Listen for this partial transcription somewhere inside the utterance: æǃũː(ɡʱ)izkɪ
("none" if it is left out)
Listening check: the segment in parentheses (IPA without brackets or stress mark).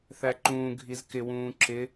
ɡʱ